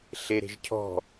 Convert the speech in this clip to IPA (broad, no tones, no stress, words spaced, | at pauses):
ɬeɾe̤ʒcʰɔ̤